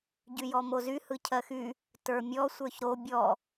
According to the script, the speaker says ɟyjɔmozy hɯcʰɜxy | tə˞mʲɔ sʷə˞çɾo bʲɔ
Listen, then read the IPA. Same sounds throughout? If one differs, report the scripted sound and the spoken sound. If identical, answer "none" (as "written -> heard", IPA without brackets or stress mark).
none